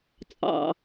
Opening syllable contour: low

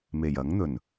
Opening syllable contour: low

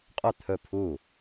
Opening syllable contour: falling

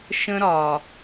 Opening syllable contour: high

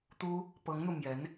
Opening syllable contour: high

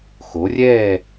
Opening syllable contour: rising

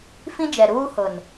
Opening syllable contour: high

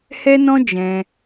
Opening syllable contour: high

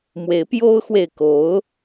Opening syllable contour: rising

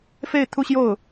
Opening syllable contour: falling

